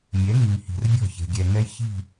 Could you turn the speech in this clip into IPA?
mʲ ɛ˨˦ ŋ i˨ ŋ h i̤˨ r bʲ ɔ̤˦˨ ç e̤˨ ɡʲ ɛ˨ ŋ ɛ˦ j ç i̤˦˨

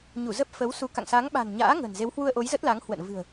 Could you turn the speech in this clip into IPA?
ɲ u˧˩ z ə˦˥ p̚ f ə˨˦ w s u˨˦ k a̰˧˨ ŋ s a˨˦ ŋ ɓ a̤˨˩ n ɲ a̰ː˧˥ ŋ ə̤˨˩ n z e˨˦ w h w u˧ ə̯ ʔ o˨˦ j z ə˦˥ t̚ l a˨˦ ŋ h w ə̰˧˨ n v ɨ̤˨˩ ə̯

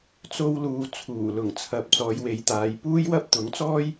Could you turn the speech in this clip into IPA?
t͡s o˧ w l uː˨ t͡sʰ uː˨˩ l ʊ˨˩ ŋ t͡sʰ ɐ˨ p̚ t͡s ɔː˨˧ j w e˨˧ j t̪ aː˨˧ j p uː˥ j w ɐ˥ p̚ t̪ ʊ˨˥ ŋ t͡s ɔː˥ j

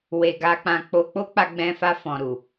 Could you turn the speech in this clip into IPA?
w e˧ ɡ a˧ k͡p ã˧ k͡p o˧ k͡p o˦ k͡p a˧ ɡ͡b ɛ̃˧ f a˧ f ɔ̃˨ ɾ u˨

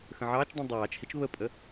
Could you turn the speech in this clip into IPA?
x ə̃ ʕ ɑː t͡ʃ dˤ ĩ dˤ ɑː t͡ʃ h i t͡ʃ β ə pʼ ə

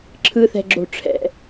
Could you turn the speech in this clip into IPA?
ǁʰ ɯ θ ɛ̤ ɡ͡ǁ o̤ ʈ͡ʂʰ ɛ̰

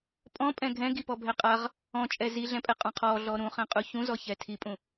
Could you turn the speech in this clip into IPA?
pʼ ɔ̃ pʼ ɛ̃ ɡʱ ɛ̃ ɡ i p ɔ bʱ ɛ qʼ a ʁ | ɔ̃ t͡ʃʼ ɛ z i ɮ ɛ̃ pʼ ɛ qʼ ɔ̃ qʰ ɔ ɮ ɔ ɾ ũ χ ɛ̃ qʼ u ç ũ z ɔ ç ɛ tʰ i pʼ ũ

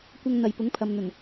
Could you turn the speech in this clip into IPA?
kʷ ɐ˧ ŋ n̪ ɐ˨ j p ʊ˨˥ ŋ pʰ ɐ˨ m n̪ ɵ˨˩ n

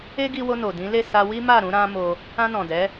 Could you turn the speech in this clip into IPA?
e˦ ɡ i˧ w o˧ n o˨ d ĩ˨˦ l e˦˨ s a˧ w i˦ m a˦˨ ɾ ũ˧ ɾ ã˦ m o˧ | ã˧ n ɔ̃˨ d ɛ˨˦

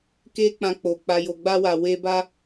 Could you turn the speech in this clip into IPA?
k e˦ k͡p ã˧ k͡p o˨ k͡p a˨ j o˨ ɡ͡b a˧ w a˨ w e˧ b a˦

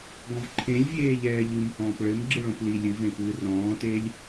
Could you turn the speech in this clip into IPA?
ɡ ɔ̃ v ǃʰ ẽ lʲ vʲ eː ʎ ɛː ʎ ɨ m h ɔ̃ː p ɭ ɘ m ɡ͡ǁ ɨ ɭ õ p l i lʲ ɨ v ẽ p ɨː r ɔ̃ː t eː lʲ

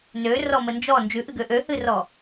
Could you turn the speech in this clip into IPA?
n ø r ɔ m ə n d͡ʒ ɔ n d͡ʒ ʉ ʔ ɨ ɡ ø ʔ ø h ɨ r ɔ

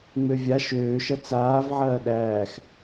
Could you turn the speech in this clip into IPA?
ŋ͡m ø vʲ a ʃ øː ʃ ɐ t͡s aː v ʕ ɐː ɗ æː x

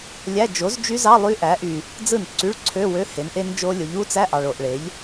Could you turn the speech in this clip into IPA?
lʲ æ˧˥˧ d͡ʒ o˩˥ z d͡ʒ y˦˥ z ɑ˧˥˧ lˠ y˦˥ ʔ æ˩˥ ʔ y˨ | d͡z ɯ˥˩ n ǀ y˧˥˧ ɭ ǀʰ ø˧˥˧ w ø˧˥˧ h e˩˥ n ʔ e˦˥ n d͡ʒ o˦˥ lʲ o˩˥ ʎ u˦˥ t͡s æ˧˥˧ ʔ ɑ˨ ɭ o˨ ʔ ɭ e˩˥ ʎ

